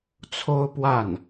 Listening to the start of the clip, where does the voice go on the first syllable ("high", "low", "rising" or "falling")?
high